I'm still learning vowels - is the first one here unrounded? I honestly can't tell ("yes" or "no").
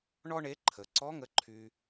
no